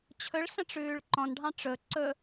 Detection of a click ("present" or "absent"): present